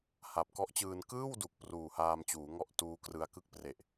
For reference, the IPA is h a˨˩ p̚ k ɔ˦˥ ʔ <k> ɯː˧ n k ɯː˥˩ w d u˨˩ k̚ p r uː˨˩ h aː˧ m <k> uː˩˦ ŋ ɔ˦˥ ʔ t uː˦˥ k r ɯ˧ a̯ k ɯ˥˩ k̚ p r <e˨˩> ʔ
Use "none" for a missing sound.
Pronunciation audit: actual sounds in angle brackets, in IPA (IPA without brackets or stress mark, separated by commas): t͡ɕ, t͡ɕ, e˨˩